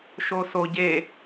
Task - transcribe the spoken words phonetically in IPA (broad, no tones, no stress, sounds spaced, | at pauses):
ʃ o s o ɟ e